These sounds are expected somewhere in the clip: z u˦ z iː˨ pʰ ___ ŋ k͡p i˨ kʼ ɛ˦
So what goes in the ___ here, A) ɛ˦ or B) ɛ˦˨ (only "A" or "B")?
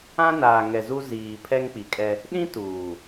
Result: A